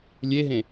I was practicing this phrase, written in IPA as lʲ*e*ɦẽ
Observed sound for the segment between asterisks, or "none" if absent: e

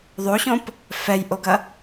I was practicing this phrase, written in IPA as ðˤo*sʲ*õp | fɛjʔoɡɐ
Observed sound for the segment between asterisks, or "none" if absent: ɕ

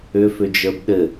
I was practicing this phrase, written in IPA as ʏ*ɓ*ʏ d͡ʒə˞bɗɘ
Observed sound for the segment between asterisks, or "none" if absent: f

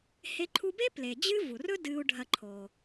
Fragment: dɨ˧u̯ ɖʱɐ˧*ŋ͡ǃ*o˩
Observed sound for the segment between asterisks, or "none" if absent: ǃʰ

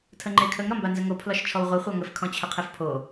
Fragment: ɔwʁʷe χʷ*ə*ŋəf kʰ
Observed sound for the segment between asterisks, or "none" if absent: a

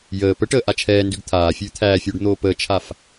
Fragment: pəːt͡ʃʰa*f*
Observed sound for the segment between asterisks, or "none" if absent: f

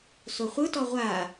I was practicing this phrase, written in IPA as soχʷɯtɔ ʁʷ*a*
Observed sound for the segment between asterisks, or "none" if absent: a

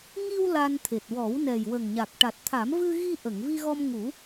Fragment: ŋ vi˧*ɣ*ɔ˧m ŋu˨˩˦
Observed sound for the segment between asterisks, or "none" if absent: ɣ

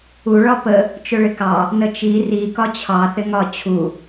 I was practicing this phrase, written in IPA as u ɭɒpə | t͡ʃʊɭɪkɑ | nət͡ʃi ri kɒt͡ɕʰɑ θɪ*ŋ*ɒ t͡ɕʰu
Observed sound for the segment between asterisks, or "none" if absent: ŋ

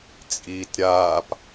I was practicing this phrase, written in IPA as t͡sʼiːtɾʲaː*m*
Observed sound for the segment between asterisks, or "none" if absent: p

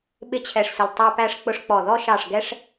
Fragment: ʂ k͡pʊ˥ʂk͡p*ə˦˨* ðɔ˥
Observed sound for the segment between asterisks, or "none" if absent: ɔ˦˨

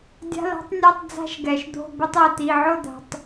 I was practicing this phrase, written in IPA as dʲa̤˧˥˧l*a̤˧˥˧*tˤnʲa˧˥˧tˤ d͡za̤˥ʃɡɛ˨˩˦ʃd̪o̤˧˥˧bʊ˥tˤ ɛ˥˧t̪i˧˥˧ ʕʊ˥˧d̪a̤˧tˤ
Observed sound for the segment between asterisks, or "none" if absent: a̤˥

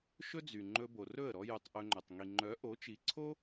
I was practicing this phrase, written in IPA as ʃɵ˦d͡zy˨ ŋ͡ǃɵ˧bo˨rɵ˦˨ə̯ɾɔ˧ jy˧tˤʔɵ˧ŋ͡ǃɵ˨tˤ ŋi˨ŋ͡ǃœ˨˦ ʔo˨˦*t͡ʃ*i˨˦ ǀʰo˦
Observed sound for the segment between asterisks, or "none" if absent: t͡ʃ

